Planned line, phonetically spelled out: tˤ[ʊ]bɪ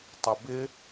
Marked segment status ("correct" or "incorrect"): correct